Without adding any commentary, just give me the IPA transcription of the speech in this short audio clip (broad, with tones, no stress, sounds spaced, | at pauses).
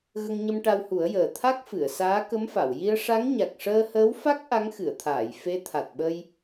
ɣ ə˧ ŋ ɲ ə˧ m ʈ a˧ w h u˨˩˦ ə̯ j əː˨˩ t̪ʰ a˦˥ k̚ f ɨ˨˩˨ ə̯ s aː˧˥ k ə˧˥ m f a˨˩˨ w j i˧ ə̯ ʂ a˧˥ ŋ ɲ a˨˩ k̚ ʂ əː˧ h əː˧˥ w f a˦˥ k̚ ʔ a˧˥ ŋ x ɨ˨˩˨ ə̯ t̪ʰ aː˨˩˨ j f e˧˥ t̪ʰ a˨˩ t̚ ɓ ə˧ j